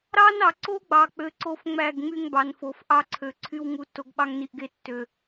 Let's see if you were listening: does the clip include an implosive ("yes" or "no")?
yes